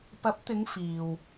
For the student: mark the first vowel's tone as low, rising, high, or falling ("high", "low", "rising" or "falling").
rising